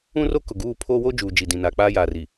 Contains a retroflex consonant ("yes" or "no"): no